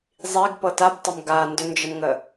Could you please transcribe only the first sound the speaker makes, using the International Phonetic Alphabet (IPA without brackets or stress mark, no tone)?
zˤ